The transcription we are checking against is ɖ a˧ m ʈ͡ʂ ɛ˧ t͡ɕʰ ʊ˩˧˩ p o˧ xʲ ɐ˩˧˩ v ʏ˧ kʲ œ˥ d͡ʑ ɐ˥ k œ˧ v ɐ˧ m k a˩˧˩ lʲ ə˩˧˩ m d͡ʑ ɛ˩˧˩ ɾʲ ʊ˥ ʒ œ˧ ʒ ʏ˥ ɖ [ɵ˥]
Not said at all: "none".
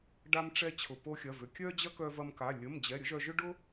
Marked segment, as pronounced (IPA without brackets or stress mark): ʊ˥